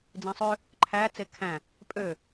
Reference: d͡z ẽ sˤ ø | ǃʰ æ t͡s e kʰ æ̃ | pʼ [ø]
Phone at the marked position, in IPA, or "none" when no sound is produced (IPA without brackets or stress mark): ø